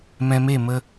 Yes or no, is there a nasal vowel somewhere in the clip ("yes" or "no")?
yes